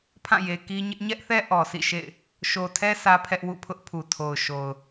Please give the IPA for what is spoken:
pʰ ã˦˨ j e˨ k i˦ ɲ ɪ˦ ʔ ɲ ɛ˦ ʔ θ ɛ˦ ʔ ɔ˨ sʰ ḭ˦˨ ʃ ḛ˦˨ ɪ̯ | ʃ o˨ tʰ ɛ˦ s ä˦ pʰ ɛ˦ ʔ w ṵ˦˨ pʰ ʊ˦ ʔ pʰ u˨ tʰ o˨ ʊ̯ ʃ o˨ ʊ̯

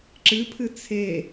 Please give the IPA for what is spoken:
ǁ ɨ pʰ ɨ t͡sʰ e

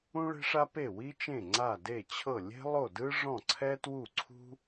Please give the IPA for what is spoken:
ũ˥ ɭ e̤˥ ʂ a˥ p e˥˩ w i˥ t͡ʃ ẽ˥˩ ŋ͡ǀ a˥˩ d e˥˩ t͡ɕʰ ɤ˥˩ lʲ e̤˥ lˠ o˥˩ d ɯ˥ ʐ ɔ̃˥˩ ǀʰ ɛ˥ t w u˥˩ ǀʰ ṳ˥

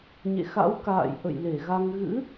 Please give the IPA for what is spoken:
ɲ ḛ˧˨ x a̰˧˥ w k a̰ː˧˨ j ʔ ə̰˧˨ j l e˧˩ ɣ a˧ ŋ ɣ ɨ̰˧˥

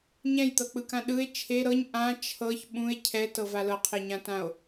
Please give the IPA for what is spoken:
ɲ ɛ̃ j t̪ ɤ k͡p ɯ k ã ɗ ɯ e̯ t͡ʃʰ e ɾ ɤ ɲ ʔ ã t͡ʃʰ ɤ ç ɓ ũ e̯ cʰ ɛ t ɤ v a l ɤ qʰ e ɲ ã t ã o̯

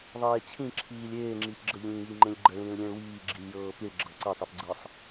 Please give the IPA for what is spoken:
ðˤ eː t͡ɕʰ ĩ ǁʰ iː lʲ eː ŋ͡ǁ i p ɡ͡ǁ ə ʎ ĩː j i ŋ͡ǃ ẽ lʲ ɡ͡ǃ ə ɭ ĩː ɭ lʲ ẽ ɭ w iː ɡ͡ǁ i lʲ j ɤː p i ɭ ɡ͡ǁ ɤ ǀ ə tˤ e p ɡ͡ǀ ɤ sˤ

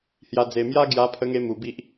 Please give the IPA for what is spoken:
h j a˧ d͡z e˧ m j a˦ ɡ j a˧ pʰ ə˧ ŋ e˧ m u˧ b i˦ ʔ

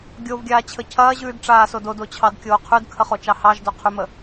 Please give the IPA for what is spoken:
ɡʲ o v ɡʲ aː t͡ɕʰ ə cʰ ɐː ʑ ʉː d ʈ͡ʂ aː s o d o d o t͡ɕʰ ɑ d kʲ oː qʰ ʉ d kʰ ə χ o t͡ʃ ɑ h ɑ ʒ d o qʰ ʉ m ə

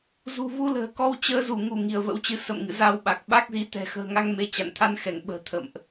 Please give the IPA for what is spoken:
z ṳ˨˩ v u˧ l ə̤ː˨˩ k ɔ˧ w t͡ɕ əː˨˦ z u˧˩ ŋ u˧˩ ŋ i˧˩ ə̯ v ə̰˧˥ w t͡ɕ ɨ˨˦ s ə̰˧˨ m ŋ ɨ̰˧˨ z a˧ w ɓ a˨˩ k̚ ɓ a˦˥ k̚ z i˨˦ t̪ ɛ̤˨˩ x ə̤ː˨˩ ŋ a˧ ŋ m e˧ t͡ɕ a̰˧˨ n t̪ʰ a˧ n x ɛ˧˩ ŋ ɓ ə̤ː˨˩ t̪ʰ ə̰˧˨ m ʔ

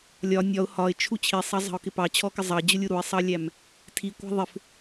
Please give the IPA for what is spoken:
lʲ ɒ nʲ ɒ ʊ̯ h ɒ ɪ̯ t͡ʃʰ u t͡ɕʰ i sˤ ɑ zˤ ɑ̤ ʊ̯ k ɪ p ɑ t͡ɕʰ ɔ k ɪ zˤ ɑ d͡ʑ ʊ lʲ u ɾ u ɪ̯ sˤ ɑ lʲ æ m | tʰ i kʷ æ̤ ðˤ ɪ f

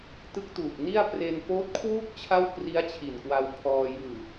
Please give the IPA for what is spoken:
t ɯ˦˥ k̚ t uː˨˩ k̚ n i˥˩ a̯ p r e˧ n f oː˦˥ t̚ kʰ w uː˥˩ k̚ t͡ɕʰ a˥˩ w k r i˦˥ a̯ t͡ɕʰ i˨˩ n k w a˧ w pʰ ɔː˧ j ɯː˨˩

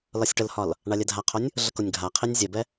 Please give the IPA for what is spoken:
l ɒ sʲ ʈ ə l h ɒ l | ɳ a lʲ ɛ dʱ a qʰ o nʲ | ɮ ə k o nʲ ɡʱ a qʰ i nʲ zʲ ɛ b ɛ

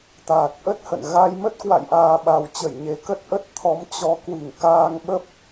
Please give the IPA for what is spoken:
t̪ aː˨˩ t̚ ʔ ə˦˥ t̚ h ə̰˧˨ n ɣ a˧ j m ə˦˥ t̚ k w a̰˧˨ j ʔ aː˨˩ ɓ a˨˩ w t͡ɕ ə˧˩ j ɲ e˨˩ k ə˦˥ t̚ ʔ ə˦˥ t̚ t̪ʰ ɔ˨˦ m t͡ɕ ɔ˨˦ k w i˧˩ ŋ k aː˧ ŋ ɓ ə˦˥ p̚

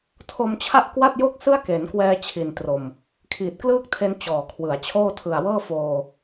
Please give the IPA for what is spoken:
tʰ o˧ m t͡ɕʰ a˥˩ ʔ k w a˥˩ t̚ j o˥˩ k̚ s ɯ˥˩ a̯ k e˩˦ n k w ɛː˧ t͡ɕʰ i˨˩ n t r o˨˩ m | kʰ iː˨˩ t̚ k l ɯː˥˩ k̚ tʰ e˧ n t͡ɕ ɔː˨˩ kʰ w ɯ˩˦ a̯ t͡ɕʰ oː˥˩ tʰ ɯ˨˩ a̯ w ɤː˥˩ f oː˧

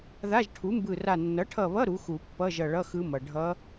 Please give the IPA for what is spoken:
ð a˧˥˧ ʒ ʈʰ u˩˥ m b ɯ˧˩ r a˧˩ nː ʌ˩˥ ʈʰ ʌ˧˩ β ʌ˧˥˧ ɾ u˩˥ x u˨˩˦ pː ʌ˧˥˧ ʒ ʌ˧˩ ɭ ʌ˧˥˧ x ɯ˧˥ m ʌ˩ ɖʱ ʌ˧˥

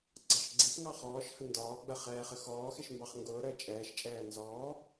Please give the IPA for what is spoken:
ɡ͡ǀ ɑ ʃ ɡ͡ǀ i p ŋ ɑ χ ɔː ʃ h ə n d ɒː ɡ͡b ə χ ɛː χ ə x ɔː x ɪ ʃ m b ɑ χ ŋ ɡ ʊː ɾ əː t͡ʃʼ ɛː ʃ t͡ʃʼ ɛː n z ɔː

